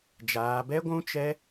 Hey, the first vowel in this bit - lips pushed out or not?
no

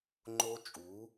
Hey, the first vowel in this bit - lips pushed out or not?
yes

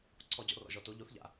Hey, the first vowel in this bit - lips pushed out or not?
yes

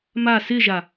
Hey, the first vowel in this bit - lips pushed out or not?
no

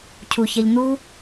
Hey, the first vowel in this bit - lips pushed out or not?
yes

